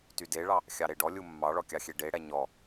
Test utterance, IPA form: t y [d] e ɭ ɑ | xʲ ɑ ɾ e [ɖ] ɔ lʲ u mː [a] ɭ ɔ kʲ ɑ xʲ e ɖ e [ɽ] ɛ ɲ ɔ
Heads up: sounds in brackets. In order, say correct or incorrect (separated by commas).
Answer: correct, correct, incorrect, correct